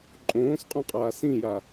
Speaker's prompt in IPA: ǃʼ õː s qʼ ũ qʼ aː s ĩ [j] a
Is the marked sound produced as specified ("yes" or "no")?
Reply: yes